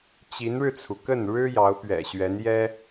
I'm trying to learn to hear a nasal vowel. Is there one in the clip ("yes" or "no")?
no